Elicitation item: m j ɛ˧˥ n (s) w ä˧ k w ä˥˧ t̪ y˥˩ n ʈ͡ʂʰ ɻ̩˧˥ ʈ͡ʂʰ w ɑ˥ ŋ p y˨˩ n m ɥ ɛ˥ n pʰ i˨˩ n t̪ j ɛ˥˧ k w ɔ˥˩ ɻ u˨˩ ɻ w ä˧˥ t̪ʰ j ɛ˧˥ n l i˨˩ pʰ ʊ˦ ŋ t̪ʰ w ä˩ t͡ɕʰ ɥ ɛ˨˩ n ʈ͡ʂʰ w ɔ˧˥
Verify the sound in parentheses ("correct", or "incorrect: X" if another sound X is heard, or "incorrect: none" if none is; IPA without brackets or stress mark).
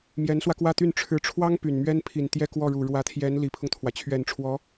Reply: correct